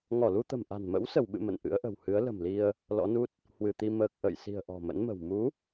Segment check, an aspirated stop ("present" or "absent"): absent